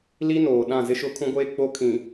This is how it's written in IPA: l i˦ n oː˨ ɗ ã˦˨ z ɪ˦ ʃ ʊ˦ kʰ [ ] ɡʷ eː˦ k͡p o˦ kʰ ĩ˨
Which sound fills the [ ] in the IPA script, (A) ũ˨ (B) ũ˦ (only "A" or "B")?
B